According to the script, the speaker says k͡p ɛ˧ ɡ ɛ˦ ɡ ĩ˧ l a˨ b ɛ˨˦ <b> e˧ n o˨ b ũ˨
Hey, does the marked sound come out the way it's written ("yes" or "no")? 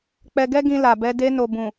no